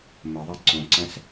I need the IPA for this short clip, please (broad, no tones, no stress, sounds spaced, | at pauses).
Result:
m ə ðˤ ɐ ǀ õ ǀ ɐ̃ s